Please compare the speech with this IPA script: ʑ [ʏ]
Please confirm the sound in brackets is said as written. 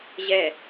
no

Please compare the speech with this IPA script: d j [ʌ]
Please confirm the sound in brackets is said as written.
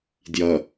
yes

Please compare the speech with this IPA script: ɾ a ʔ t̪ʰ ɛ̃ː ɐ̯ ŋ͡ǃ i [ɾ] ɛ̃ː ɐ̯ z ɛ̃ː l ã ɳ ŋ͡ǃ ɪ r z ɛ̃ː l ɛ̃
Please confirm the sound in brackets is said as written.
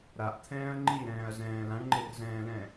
yes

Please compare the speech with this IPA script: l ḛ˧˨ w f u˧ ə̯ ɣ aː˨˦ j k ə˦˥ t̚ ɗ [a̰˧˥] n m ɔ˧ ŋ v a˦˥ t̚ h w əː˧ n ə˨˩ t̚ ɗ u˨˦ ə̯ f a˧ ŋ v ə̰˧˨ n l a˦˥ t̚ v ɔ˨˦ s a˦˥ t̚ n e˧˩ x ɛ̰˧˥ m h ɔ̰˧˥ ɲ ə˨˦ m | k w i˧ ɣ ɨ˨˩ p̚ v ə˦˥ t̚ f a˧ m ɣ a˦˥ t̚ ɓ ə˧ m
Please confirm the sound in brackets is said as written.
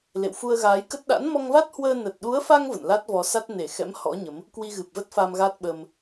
yes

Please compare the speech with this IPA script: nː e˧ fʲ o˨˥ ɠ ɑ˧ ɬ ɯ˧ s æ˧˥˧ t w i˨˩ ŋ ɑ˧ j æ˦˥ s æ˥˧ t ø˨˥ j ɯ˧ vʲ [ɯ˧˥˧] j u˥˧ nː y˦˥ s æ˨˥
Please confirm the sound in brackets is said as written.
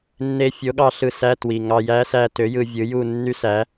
no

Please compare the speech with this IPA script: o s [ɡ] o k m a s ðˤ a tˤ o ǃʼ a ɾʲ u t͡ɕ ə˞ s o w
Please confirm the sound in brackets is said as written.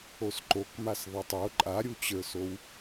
no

